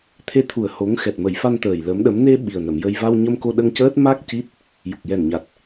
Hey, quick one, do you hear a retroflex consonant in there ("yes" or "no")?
no